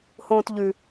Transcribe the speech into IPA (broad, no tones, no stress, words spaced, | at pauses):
hõːtʎʉ